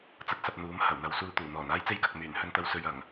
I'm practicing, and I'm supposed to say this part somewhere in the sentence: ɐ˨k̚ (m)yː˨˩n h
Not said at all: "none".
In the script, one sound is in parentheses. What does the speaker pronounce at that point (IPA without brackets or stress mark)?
m